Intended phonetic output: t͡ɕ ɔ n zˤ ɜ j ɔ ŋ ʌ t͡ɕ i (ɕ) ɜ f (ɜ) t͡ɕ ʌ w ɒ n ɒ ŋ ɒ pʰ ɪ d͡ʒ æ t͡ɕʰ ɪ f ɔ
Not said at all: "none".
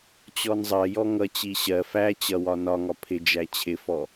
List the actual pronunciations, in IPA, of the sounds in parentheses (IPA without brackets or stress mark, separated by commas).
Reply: ɕ, æ